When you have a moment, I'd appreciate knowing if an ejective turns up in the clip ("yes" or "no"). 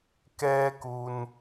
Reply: no